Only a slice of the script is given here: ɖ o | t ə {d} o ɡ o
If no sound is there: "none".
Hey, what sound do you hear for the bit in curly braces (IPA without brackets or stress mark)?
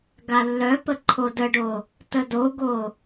d